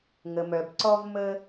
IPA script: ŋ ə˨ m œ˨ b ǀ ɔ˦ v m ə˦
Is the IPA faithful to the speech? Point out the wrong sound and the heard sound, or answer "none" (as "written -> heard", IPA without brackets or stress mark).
none